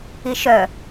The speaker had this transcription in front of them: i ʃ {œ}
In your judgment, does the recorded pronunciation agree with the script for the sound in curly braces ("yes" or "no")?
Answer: yes